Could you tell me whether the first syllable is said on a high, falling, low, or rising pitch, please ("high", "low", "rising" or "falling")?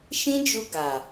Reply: high